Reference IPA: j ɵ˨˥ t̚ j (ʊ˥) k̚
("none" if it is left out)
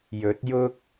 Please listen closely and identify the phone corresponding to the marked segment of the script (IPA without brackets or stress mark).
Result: ʊ˥